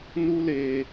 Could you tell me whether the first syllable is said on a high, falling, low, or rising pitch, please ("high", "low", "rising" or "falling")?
high